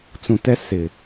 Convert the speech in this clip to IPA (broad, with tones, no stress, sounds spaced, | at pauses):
t͡s ũ˨ t ɛ˦ s ɪ˨